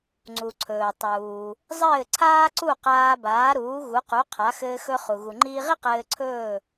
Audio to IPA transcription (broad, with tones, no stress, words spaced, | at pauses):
ŋ͡ǀu˩ǀʰɵː˩tˤuː˩ | zˤɘː˥˩ ǀʰaː˥ǀu˥˩qaː˧baː˩˥ ɾuː˩˥ɣu˩˥qu˩˥ qʰa˩˥ xɘː˧xɵ˧ χu˩ ɣu˩ŋ͡ǃiː˧ʁi˥ qɘː˧ǀʰɵː˥˩